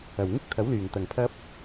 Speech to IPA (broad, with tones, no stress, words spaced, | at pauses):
ɐ˨˩wŋɪ˥k̚t̪ʰɐ˨˥wlyː˨˩ŋ t̪ɐ˨˩ŋpʰɐ˧p̚